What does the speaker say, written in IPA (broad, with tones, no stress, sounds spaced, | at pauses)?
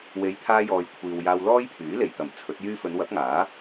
w e˨˧ j t̪ʰ aː˧ j ɔː˨ j kʷʰ iː˨ w j aː˧ w l ɔː˥ j pʰ yː˨˥ l e˨˩ j t̪ ɐ˨˩ m t͡sʰ ɵ˨˥ t̚ j yː˥ f ɵ˨˧ n w ɐ˨˥ p̚ ŋ aː˨˥